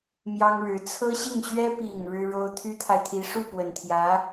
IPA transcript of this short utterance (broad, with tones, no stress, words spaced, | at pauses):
mjɑ˥ŋɻɻ̩˧˥ t͡sʰɤ˥ɕi˥˩ŋɕɥɛ˥ pi˨˩ŋ ɻɻ̩˥ɻo˥ʊ̯ t̪ʰy˥t̪ʰa˨ɪ̯t̪ʰi˧˥ ʂu˥˩pwə˨˩nt̪ʰjä˧˥